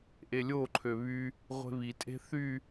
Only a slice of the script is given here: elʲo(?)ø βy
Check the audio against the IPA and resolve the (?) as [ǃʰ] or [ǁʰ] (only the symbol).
ǃʰ